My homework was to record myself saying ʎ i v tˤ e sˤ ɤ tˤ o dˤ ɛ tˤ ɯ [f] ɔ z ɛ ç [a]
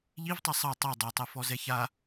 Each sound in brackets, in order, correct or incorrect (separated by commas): correct, correct